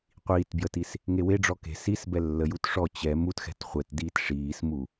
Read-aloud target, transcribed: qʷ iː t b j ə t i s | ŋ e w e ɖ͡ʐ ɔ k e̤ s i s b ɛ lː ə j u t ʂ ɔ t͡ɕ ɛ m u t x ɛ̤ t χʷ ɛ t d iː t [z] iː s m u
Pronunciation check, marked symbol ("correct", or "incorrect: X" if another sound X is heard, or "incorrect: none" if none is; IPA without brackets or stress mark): incorrect: ʂ